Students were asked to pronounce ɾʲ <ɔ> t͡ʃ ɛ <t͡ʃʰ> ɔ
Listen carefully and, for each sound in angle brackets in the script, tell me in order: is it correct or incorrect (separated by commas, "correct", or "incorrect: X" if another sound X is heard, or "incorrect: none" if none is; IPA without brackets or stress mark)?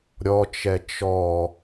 correct, incorrect: t͡ʃ